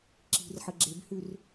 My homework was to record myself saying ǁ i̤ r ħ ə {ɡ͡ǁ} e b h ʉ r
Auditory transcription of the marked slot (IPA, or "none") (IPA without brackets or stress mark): ɡ͡ǁ